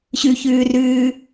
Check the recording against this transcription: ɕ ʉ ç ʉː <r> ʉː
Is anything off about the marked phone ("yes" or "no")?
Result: no